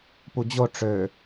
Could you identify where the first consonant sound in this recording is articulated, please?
labial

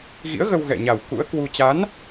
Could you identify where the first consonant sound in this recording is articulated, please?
velar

